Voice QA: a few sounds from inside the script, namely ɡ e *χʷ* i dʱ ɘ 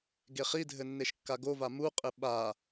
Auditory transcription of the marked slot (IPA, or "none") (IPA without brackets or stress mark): χ